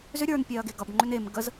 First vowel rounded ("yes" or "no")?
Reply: yes